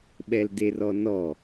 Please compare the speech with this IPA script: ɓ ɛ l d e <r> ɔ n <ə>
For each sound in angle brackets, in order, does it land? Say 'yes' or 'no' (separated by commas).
yes, no